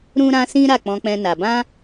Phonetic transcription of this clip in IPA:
ɾũ˦ɾã˦sĩ˦ ɾa˦˨k͡pɔ̃˧k͡pɛ̃˧na˨ bã˧

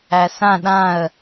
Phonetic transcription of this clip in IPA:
æsã ɗãə̯

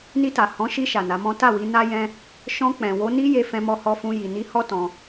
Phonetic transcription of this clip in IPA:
ni˧ta˨ hɔ̃˨˦ʃi˧ ʃa˨na˨˦mɔ̃˦ ta˦˨wi˨˦ na˦jɛ̃˦ | ʃɔ̃˧k͡pɛ̃˨ wo˧ni˦je˧ fɛ̃˧mɔ˧hɔ˧fũ˧ ji˨ni˧hɔ˦ tɔ̃˧

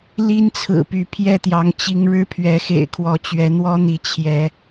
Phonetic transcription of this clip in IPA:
li˦nt͡sʰɹ̩˨˩ py˨˦pʰjɛ˥˨t̪jɑ˨˦ŋ t͡ɕi˦ŋ ɻɻ̩˦pʰɥɛ˨˦xḛ˨˩ɪ̯kʰwɔ˨˦ t͡ɕɥɛ˨˦n̪wɔ˦n̪i˨˦ t͡ɕʰjɛ˨˦

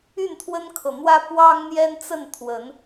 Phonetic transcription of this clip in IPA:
y˥˨nt̪ʰwə˦nkʰɤ˨n̪wä˦ pwɑ˦ŋn̪jɛ˦n t͡sə˥˨nt̪ʰwə˨˦n

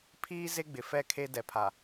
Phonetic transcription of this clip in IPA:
pʰiː˦ ze˦ɡ͡bɪ˨ fɛ˦˨ kʰe˦dɛ˨pʰa˨

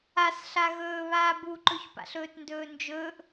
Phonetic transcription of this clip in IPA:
as ɬaɣɵː βaːbuǃɵçpa̰ɬ ɵːtndɵːnd͡ʒɵːʔ

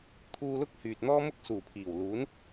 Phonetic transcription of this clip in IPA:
t̪ʰuː˧lʊ˥k̚ hyː˨t̚n̪ɔː˥mʊ˥k̚ suː˨˩pʰiː˨˩w luː˨˥n

